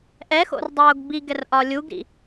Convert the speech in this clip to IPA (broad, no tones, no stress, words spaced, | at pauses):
ʔɛxo̰rdˤoːɡ biɡɛrʔɒ lʲuɡɾḭ